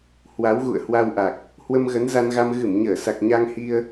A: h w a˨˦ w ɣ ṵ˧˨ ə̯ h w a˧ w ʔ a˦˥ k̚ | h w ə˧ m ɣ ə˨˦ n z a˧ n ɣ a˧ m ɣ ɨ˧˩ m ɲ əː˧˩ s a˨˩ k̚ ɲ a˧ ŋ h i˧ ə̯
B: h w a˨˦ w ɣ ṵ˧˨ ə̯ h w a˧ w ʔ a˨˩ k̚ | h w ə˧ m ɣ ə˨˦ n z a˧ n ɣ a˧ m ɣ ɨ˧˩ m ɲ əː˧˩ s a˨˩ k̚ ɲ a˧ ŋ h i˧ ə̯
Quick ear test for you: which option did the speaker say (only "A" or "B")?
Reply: B